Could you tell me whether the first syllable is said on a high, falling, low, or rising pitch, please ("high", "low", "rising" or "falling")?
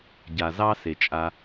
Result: low